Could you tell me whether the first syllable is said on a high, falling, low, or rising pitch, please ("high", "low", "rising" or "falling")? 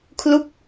falling